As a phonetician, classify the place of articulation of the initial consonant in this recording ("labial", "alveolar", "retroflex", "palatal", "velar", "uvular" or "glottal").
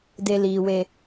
alveolar